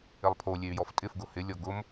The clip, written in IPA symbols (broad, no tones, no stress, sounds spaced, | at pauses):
ɪ lˠ pʰ o lʲ e y̯ j ɔ f tʼ ɪ f ɡ ʊ h ɪ lʲ ɔ ɡ ʊ m